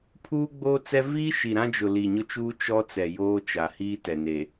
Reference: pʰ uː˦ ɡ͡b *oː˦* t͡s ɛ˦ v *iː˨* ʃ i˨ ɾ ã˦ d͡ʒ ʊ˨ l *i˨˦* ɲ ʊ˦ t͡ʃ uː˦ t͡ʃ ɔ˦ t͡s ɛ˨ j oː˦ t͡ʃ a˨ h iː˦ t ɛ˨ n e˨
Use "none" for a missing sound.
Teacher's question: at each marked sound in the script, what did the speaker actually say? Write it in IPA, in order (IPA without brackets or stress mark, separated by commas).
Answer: oː˦, iː˦, i˨